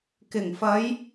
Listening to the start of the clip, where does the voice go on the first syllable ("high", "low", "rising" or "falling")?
low